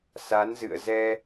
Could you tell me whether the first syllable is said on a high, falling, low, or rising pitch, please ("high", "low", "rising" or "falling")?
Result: rising